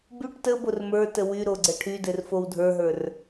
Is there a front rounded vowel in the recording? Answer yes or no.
yes